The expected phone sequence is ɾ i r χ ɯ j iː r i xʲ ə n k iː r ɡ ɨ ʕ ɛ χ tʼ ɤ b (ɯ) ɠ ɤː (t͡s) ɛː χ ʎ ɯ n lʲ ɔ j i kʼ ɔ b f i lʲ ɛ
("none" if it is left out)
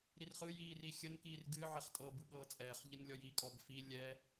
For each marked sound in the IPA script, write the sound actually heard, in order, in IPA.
ɯ, t͡sʼ

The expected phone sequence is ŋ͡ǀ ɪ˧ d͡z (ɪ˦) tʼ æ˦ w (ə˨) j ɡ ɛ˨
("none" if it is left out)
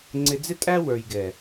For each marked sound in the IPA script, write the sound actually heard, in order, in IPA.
ɪ˦, ə˞˨

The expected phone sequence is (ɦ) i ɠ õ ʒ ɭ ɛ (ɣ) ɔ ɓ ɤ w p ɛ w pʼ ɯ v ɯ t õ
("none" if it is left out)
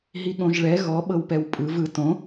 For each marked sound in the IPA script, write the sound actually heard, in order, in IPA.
ɦ, ɣ

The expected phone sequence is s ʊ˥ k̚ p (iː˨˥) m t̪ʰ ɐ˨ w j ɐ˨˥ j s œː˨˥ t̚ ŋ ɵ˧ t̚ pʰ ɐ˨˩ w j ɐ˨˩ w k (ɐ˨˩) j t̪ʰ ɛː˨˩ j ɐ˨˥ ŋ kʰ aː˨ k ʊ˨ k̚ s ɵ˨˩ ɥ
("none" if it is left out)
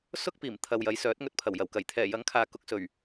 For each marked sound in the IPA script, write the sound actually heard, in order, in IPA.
iː˨˩, ɐ˨˩

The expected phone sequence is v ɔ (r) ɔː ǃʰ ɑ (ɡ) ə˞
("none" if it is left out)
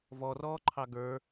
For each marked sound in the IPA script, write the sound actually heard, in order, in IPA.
r, ɡ

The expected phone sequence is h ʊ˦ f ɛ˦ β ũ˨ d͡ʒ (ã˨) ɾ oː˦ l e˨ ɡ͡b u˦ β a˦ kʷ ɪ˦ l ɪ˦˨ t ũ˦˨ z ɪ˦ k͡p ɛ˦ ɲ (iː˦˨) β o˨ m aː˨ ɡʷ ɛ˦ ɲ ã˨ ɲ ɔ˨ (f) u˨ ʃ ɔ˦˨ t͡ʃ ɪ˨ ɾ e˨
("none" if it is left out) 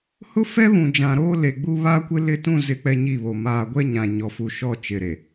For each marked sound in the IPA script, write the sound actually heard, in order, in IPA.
ã˨, i˦˨, f

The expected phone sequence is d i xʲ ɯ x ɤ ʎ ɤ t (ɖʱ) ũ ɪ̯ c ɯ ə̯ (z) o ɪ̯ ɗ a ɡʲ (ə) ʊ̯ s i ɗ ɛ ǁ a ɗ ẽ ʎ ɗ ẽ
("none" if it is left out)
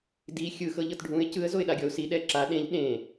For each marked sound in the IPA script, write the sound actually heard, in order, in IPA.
ɖʱ, z, ɔ

